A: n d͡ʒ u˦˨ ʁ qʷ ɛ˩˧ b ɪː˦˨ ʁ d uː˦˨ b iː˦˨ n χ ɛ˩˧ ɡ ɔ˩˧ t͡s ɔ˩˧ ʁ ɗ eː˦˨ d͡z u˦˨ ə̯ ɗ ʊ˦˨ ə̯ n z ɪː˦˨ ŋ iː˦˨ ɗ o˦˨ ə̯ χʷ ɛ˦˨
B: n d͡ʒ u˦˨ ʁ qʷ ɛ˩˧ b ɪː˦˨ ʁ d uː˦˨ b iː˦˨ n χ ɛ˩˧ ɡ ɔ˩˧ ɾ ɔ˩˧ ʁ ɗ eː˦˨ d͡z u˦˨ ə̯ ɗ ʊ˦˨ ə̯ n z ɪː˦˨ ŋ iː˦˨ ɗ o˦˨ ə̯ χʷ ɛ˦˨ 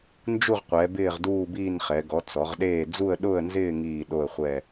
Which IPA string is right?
A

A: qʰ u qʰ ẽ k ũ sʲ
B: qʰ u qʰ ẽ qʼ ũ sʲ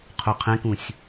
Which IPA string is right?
A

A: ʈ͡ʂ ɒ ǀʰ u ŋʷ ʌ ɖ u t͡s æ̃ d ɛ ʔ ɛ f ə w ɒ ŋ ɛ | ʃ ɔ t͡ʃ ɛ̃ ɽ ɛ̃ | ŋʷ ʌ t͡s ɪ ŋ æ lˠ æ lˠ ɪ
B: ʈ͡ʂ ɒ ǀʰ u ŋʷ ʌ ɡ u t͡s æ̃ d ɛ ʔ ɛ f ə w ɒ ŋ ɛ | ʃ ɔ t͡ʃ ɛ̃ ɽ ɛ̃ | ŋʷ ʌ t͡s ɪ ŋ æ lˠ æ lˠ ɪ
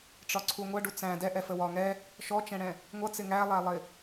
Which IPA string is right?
A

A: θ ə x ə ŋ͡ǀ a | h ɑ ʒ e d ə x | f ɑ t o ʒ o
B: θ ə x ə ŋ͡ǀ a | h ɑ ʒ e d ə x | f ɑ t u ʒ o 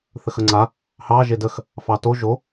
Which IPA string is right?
A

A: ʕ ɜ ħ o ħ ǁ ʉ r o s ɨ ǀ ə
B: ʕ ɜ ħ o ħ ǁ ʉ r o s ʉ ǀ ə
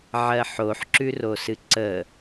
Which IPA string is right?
A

